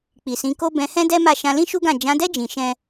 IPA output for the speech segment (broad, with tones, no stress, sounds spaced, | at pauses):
k͡p i˨ s ĩ˨˦ k o˦ b ɛ̃˧ h ɛ̃˦ d ɛ˦ m a˦˨ ʃ ã˧ l ĩ˦ ʃ u˦ ɡ ã˦˨ d͡ʒ ã˨˦ d ɛ˦ d͡ʒ ĩ˧ ʃ ɛ̃˦